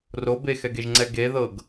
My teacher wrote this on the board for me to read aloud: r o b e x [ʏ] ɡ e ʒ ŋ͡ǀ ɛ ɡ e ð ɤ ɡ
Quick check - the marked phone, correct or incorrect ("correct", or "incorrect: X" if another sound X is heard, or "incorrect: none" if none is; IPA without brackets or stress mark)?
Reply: incorrect: ɛ